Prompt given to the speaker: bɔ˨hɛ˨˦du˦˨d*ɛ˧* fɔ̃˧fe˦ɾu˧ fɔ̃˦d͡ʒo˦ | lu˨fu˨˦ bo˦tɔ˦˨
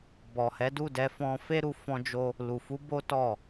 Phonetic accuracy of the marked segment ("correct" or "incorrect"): correct